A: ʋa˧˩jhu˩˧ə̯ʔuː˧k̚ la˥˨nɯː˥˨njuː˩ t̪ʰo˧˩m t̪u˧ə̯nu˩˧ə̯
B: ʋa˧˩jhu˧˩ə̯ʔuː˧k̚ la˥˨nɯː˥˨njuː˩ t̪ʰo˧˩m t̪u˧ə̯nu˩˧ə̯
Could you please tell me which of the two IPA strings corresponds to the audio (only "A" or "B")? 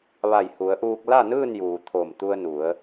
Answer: A